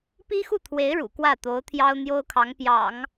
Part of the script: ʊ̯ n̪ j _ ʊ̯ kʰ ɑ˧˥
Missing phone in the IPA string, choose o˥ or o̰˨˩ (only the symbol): o˥